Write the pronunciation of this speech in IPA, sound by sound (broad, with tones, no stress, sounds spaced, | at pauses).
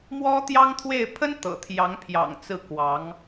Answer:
m w ɔ˥ t̪ j ɑ˥ ŋ t̪ʰ w e˥˩ ɪ̯ pʰ ə˥ n t̪ ɤ̰˨˩ t̪ʰ j ɑ˧˥ ŋ pʰ j ɑ̰˨˩ ŋ t͡s ɹ̩˥˩ k w ɑ˧˥ ŋ